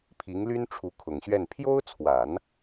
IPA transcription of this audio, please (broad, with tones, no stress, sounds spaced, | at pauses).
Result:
pʰ i˧˥ ŋ l y˥ n ʈ͡ʂʰ u˧˥ kʰ ʊ˨˩ ŋ ɕ ɥ ɛ˥˩ n pʰ j o˥ ʊ̯ t͡sʰ w a˨˩˦ n